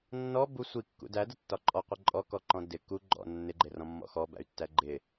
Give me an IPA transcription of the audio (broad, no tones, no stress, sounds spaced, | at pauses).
nː ɔ b u sʷ i kː ṵ d æ d ə tː ɒ ǃʼ ɔ qʷ ɪ ǃʼ ɔ k ɔ ǃ ɔ̃ d ɪ k u ɡ͡ǃ ɔ̰ nː ɪ ɡ͡ǃ ɪ r ɔ̃ mː ɔ̰ x ɔ b æ̰ y̯ tː æ ɡ͡ǃ ɪ